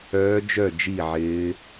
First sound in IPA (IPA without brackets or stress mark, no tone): œː